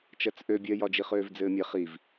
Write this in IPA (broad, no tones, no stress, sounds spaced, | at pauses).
t͡ʃ ɜ t͡s ʔ ø bʲ ɜ j ɒ d͡ʒ i χ øː v d͡z ɘː mʲ e χ i v